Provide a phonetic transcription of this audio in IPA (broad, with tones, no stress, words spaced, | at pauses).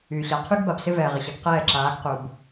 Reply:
yː˨ɕa˨ qʰy˦ɡba˨bsɪ˦ vɛː˨ʁɪ˨ɕɐ˨˦ɡ qɛː˦˨ ǁaː˨˦ɡqu˨b